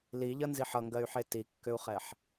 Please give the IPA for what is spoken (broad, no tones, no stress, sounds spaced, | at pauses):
l i ʎ ʌ n z i ħ ʌ ŋ ɡ ɜ y̯ ħ e t i kː ʏ u̯ χ ɛ ħ